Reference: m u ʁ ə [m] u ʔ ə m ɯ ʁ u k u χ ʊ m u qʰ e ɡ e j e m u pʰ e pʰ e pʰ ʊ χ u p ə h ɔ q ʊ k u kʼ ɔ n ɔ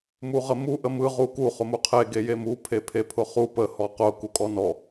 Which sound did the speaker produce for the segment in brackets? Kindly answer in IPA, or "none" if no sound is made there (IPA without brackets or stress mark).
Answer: m